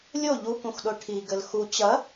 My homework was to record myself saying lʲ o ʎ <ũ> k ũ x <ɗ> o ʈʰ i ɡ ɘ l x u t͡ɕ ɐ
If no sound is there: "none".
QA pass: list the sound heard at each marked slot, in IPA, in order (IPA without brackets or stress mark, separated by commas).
u, ɗ